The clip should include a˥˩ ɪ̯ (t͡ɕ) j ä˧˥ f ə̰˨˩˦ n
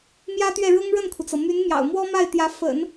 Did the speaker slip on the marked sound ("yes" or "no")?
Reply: yes